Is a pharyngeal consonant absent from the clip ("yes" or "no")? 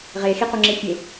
yes